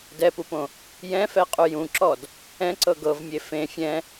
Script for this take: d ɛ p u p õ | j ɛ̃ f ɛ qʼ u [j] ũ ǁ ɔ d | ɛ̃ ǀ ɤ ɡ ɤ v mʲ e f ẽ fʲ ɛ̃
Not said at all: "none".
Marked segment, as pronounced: j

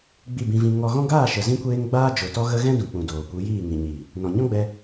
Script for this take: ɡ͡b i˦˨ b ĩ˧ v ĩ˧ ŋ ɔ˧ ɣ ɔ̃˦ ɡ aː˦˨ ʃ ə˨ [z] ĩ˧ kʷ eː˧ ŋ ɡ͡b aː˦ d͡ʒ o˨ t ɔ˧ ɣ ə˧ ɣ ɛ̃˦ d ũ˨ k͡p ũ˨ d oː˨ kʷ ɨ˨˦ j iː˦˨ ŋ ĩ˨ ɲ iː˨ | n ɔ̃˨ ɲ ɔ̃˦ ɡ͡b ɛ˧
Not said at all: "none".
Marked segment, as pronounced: z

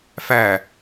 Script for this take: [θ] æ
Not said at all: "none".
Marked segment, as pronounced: f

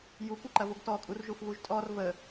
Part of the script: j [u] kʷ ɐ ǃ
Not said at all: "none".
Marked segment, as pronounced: u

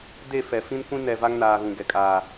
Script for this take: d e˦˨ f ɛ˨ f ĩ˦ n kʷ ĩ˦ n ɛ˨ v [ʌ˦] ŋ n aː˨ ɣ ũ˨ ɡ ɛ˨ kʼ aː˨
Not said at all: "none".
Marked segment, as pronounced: a˦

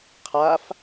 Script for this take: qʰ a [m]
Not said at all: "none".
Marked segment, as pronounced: f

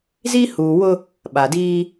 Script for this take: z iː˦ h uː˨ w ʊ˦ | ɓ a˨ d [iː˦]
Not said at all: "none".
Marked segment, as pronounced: iː˦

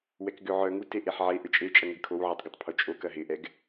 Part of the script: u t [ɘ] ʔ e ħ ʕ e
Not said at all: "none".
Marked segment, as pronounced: e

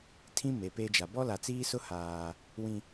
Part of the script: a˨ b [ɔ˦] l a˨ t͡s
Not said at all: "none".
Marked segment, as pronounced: ɔ˦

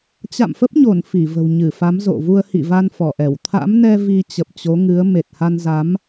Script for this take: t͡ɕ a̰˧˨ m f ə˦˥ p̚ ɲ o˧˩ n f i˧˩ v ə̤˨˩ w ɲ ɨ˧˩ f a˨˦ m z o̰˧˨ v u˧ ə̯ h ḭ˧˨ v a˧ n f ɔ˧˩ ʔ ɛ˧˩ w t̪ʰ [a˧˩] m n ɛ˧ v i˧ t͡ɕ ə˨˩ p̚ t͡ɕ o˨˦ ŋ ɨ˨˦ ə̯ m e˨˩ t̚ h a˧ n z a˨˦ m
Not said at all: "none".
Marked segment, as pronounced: a̰˧˥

